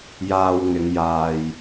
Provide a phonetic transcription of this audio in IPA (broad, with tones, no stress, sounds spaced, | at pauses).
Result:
j aː˧ w ŋ ɪ˨˧ ŋ j aː˨ j